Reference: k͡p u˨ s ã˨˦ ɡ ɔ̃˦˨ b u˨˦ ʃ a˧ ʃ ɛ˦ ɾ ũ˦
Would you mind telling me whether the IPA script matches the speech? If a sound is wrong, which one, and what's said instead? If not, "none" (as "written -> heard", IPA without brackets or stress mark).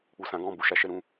none